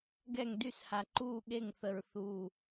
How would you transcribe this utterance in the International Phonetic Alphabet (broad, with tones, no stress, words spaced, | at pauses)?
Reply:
ɡɛ˦˨ŋdy˦˨sha˨ǃuː˦˨ ɠe˦˨ŋθə˨ɹ θu˦˨